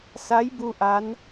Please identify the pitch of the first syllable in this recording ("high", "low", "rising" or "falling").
rising